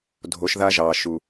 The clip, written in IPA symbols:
dʱ o˨˦ ʃ ð a˦ ʒ ɑ˨ ʃ u˨

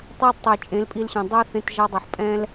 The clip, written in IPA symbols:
tˤ a˦ d tˤ e˨ t͡ʃʼ ẽ˨˦ l pʼ i˧ l ɕ ɛ̃˨ dˤ ɛ˦ θ ẽ˧ t ʒ a˧ dˤ ʌ˨ ħ pʼ ɛ̃˦ l

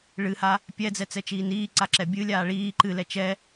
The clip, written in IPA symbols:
ɭ ɨ h a | pʲ ɛ d͡z ɛ t͡s ɛ t͡ʃ iː n iː ǀ a ǁ ɛ bʲ ɨ lʲ aː ɭ iː ǃ ɨ l ɛ t͡ʃ ɛ

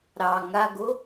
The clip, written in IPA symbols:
ɾ ɑ ŋ a ɡ o

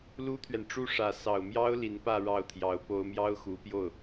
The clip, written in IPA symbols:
l u˥ t̪ʰ ɥ ɛ˨ n ʈ͡ʂ u˥ ʂ ä˧˥ s ɑ˨˩ ʊ̯ m j ɑ˥ ʊ̯ l i˧˥ n p ä˥˧ ɻ ɑ˥˩ ʊ̯ t̪ʰ j ɑ˧˥ ʊ̯ p o˥ ʊ̯ m j ɑ˥ ʊ̯ x u˧˥ p j o˥˩ ʊ̯

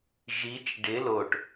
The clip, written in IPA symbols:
ʒ i t͡ʃ ɖ ɪ l o ʈ

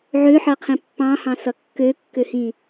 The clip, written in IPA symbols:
ʕ ø ħ ʌ qʰ ĩ pː ɑ̃ h ɑ̃ s ʌ kː ø kː ø h ĩ

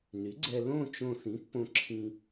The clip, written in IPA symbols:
n y˩˥ ɡ͡ǀ ɛ˧ l õ˥˧ t͡ʃ õ˧ θ ĩ˩˥ pː õ˧ ǁʰ ĩ˧

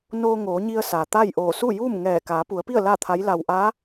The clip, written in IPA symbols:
n oː˧ ŋ oː˩˧ ɲ i˧ ə̯ s a˩ t̪ a˥˨ j ʔ oː˧˩ s u˥˨ j uː˥˨ m ŋ ɛː˧˩ k aː˩˧ p u˩˧ ə̯ p i˥˨ ə̯ l a˥˨ t̪ʰ a˧˥ j l a˧ w ʔ aː˧˥

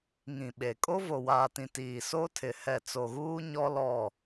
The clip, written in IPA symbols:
ŋ ĩ˨ ɓ e˨ kʼ o˦ v o˨ w aː˨ t ĩ˨ t iː˨ s o˦ tʰ ɪ˨ h ɛ˦˨ t͡s o˨ ɣ uː˦ ɲ ɔ˦ l ɔ˦˨

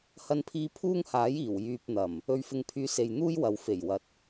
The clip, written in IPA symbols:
h ɐ˧ n pʰ iː˧ pʰ uː˥ ŋ h aː˨˥ j iː˨˩ w j yː˨ p̚ n̪ ɐ˨˩ m | ɵ˧ ɥ f ɪ˧ ŋ pʰ yː˧ s e˨ j n̪ uː˥ j w ɐ˨ w f e˨˩ j w ɐ˨ t̚

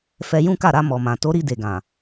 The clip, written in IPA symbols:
f ɛ˧ j ũ˦ k a˦˨ ɾ a˧ m ɔ˨ m ã˨ t o˨˦ ɾ i˧ d e˨ ɡ ã˨

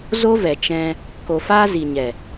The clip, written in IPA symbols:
z o˦ v ɛ˨ t͡ʃ ɛ̃˧ | k o˨ f aː˧ z i˨ ɲ ɛ˨

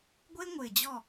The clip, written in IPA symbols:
ɡʷ e˦ ŋʷ ɪː˨ d͡ʑ ɔ˦˨

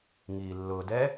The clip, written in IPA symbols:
ŋ iː lː ʊː d ɛ

